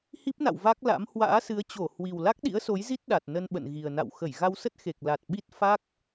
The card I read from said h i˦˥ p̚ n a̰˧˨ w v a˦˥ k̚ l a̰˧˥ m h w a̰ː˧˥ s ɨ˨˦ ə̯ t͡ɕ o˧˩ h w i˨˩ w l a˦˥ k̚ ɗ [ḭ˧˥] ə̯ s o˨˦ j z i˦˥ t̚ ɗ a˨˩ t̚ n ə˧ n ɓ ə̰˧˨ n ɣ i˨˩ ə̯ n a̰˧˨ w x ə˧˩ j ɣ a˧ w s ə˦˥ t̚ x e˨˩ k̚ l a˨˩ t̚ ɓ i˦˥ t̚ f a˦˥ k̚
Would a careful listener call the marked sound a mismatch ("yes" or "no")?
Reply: no